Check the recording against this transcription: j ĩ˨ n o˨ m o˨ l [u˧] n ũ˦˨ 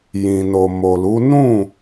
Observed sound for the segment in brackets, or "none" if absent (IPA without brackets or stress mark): u˨˦